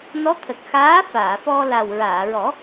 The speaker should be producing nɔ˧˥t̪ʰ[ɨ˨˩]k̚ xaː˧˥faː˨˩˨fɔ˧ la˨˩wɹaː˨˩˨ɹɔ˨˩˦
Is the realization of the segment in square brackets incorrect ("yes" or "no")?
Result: yes